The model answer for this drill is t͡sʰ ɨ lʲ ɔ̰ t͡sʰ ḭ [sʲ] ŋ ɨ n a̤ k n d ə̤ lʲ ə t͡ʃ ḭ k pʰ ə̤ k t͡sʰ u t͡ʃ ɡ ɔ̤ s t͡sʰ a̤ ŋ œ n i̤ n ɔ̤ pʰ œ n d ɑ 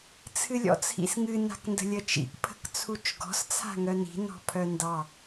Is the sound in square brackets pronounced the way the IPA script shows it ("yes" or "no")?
no